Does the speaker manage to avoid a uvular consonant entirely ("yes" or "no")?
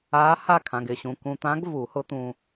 yes